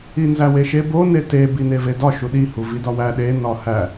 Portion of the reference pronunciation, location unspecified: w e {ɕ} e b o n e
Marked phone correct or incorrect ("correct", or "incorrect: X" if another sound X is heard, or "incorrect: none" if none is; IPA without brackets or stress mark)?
incorrect: ʃ